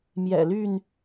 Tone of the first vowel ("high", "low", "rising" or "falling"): low